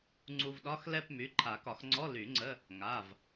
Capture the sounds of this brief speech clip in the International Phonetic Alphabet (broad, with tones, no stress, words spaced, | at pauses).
ŋ͡ǀu˧vɗɒ˧˥˧xlɛ˥˧p my˩˧˩ǃʰa˨˩˦kɒ˨˩˦xŋ͡ǀɔ˧˥˧ ly˨˩˦ŋ͡ǀə˧˥˧ | ŋa˩˧˩v